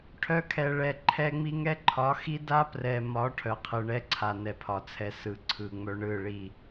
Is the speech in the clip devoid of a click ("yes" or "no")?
no